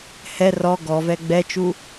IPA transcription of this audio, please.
h ɛ r ɔ ɡ ɔ v ɛ ɡ͡b ɛ t͡ʃ u

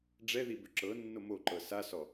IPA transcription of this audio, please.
ɖ͡ʐ ɛ ð i b ʏ ǁ ɤ nː o m o ǃ ɤ s a s ɔ

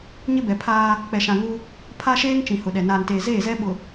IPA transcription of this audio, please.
ɲ ɪ˦ b ɛ˨ pʰ aː˦ | k͡p ɛ˨ ʃ ã˨ ŋ u˦ | pʰ a˦ ʃ eː˦ ŋ t͡ʃ ĩ˨ h ʊ˨ ɗ ɛ˨ n aː˨ n t eː˨ z eː˦˨ z ɛ˦ ɓ ʊ˨

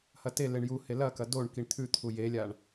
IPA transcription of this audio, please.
h ɐ t e l e ɳ j u h e l ɐ k ɐ d o ɳ k i ɳ t̪ʰ ʉ t̪ʰ u j e lʲ a ɳ

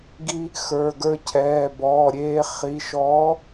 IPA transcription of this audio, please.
ɡ i˧ | x ə˞˩˧˩ ɡ ə˞˧ cʰ ɛː˩˧˩ b ɔː˩˧˩ ɾʲ eː˧ χ i˩˧˩ ʃ ɔː˨˥

